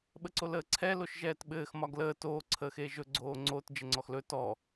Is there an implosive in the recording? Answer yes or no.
yes